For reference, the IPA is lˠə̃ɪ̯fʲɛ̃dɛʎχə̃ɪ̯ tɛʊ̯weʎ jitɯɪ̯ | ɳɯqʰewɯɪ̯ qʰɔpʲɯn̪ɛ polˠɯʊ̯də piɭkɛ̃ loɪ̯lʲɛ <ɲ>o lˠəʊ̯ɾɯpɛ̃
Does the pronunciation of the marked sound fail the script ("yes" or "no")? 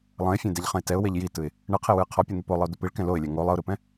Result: yes